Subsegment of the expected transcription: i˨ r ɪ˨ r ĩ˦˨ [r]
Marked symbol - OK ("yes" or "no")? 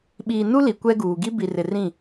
no